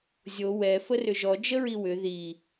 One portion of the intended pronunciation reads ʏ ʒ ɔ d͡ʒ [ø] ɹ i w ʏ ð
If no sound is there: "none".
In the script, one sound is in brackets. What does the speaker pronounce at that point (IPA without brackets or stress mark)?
ə